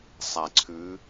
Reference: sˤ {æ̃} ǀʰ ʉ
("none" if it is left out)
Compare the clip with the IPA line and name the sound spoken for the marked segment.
æ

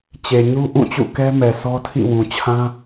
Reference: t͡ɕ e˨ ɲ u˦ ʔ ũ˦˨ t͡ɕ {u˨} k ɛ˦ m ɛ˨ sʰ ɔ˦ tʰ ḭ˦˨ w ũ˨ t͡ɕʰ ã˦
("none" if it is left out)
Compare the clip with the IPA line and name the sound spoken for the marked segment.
ṵ˦˨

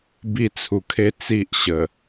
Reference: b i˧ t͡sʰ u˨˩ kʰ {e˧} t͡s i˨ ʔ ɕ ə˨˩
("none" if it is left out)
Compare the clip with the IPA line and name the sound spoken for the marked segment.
e˧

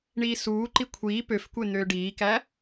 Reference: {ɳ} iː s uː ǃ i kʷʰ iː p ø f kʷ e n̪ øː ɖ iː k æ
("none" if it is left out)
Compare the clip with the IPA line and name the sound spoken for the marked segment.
ɳ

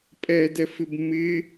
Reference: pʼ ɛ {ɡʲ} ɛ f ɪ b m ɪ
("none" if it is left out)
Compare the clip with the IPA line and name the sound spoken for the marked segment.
d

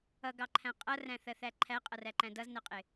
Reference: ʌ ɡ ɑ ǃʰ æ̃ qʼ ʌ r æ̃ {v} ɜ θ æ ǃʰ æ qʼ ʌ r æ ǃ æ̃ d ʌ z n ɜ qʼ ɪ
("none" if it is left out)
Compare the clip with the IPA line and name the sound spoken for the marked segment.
θ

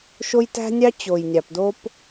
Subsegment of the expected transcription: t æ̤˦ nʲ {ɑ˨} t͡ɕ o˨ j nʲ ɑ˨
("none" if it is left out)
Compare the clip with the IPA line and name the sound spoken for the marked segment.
ɑ˦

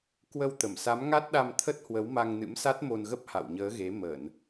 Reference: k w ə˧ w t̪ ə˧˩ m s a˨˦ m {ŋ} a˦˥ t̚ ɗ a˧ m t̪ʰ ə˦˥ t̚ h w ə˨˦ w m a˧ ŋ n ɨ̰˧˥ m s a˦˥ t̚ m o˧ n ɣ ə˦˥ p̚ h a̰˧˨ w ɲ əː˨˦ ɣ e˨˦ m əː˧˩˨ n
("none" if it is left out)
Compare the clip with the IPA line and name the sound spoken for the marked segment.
ŋ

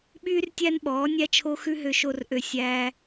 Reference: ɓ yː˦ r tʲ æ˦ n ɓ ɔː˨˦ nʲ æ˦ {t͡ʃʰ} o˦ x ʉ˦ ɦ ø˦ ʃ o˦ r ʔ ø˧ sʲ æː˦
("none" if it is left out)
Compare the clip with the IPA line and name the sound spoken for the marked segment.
t͡ʃʰ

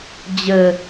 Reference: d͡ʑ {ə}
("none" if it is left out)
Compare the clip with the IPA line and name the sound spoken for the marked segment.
ə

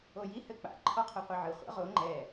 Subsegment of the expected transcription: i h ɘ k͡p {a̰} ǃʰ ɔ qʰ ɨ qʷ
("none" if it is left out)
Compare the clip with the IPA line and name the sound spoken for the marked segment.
a̰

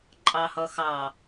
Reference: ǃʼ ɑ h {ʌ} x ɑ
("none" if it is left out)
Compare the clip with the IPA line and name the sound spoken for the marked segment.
ʌ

